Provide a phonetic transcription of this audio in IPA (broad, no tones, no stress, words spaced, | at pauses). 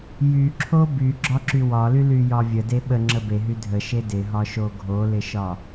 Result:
jyǁʰo byɡ͡ǁɒǁy wɒlylyjɒ vʲəde ɓəŋ͡ǁə beɦy dʱəʃe dɪɦɒʃo ɡʱolɪʃɒ